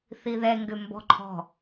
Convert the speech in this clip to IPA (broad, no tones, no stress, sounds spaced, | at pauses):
θ i ð ɛ ŋ ɡ ʏ m b ɔ̤ ǃʰ ɔ̤